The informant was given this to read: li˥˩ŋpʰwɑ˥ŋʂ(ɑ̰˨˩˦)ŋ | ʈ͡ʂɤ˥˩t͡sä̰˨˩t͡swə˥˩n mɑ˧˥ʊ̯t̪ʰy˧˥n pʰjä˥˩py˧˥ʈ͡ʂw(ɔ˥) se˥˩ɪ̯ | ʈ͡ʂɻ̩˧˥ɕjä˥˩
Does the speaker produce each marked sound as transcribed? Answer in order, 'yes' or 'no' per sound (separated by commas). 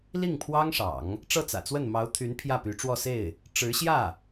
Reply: yes, no